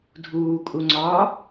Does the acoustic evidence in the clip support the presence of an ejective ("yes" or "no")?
yes